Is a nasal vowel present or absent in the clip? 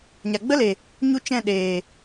present